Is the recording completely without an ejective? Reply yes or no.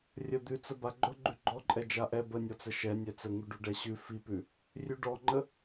no